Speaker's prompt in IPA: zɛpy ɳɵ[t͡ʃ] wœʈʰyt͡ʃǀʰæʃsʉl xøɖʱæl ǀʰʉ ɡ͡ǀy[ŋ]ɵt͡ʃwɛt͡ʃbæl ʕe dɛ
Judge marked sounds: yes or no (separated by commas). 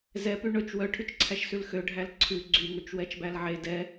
yes, yes